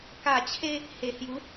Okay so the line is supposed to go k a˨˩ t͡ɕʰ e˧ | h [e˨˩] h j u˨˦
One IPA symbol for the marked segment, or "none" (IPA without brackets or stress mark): e˨˩